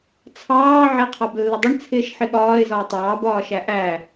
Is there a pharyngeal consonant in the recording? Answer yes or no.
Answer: yes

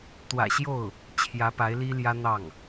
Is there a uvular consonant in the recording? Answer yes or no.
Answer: no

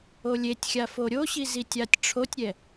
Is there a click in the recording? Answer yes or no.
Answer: no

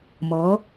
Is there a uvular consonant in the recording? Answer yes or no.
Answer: no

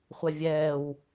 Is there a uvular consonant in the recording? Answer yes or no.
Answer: yes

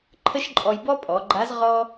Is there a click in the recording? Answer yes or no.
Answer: yes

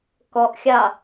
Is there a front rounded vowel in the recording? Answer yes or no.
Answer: no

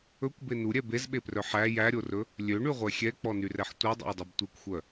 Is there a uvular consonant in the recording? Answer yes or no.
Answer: yes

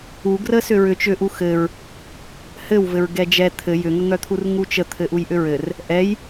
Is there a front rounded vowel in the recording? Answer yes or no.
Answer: yes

